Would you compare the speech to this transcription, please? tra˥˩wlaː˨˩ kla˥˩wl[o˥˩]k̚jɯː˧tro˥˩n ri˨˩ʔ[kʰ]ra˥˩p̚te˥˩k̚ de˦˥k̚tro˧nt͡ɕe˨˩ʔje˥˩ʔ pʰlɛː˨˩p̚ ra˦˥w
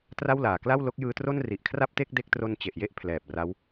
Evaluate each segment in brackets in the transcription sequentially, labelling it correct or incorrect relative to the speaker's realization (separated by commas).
incorrect, correct